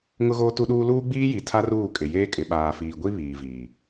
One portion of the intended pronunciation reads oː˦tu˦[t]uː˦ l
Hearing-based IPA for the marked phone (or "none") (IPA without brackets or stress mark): ɗ